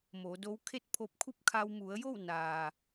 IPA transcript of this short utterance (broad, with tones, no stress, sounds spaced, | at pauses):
m o˩˧ d o˧˥ w kʰ e˥˨ t̚ pʰ o˧ p̚ kʰ u˥˨ p̚ kʰ a˧ w m u˩˧ ə̯ j o˥˨ w n aː˩